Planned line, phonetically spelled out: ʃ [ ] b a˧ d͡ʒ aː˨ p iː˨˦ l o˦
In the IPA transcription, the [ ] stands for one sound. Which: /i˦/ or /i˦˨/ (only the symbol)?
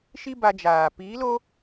i˦